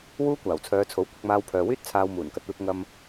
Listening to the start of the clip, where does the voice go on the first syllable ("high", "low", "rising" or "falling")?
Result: high